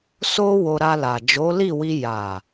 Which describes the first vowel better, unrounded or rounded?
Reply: rounded